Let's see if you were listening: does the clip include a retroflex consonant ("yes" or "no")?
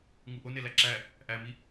no